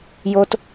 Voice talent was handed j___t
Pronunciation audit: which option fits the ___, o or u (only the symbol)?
o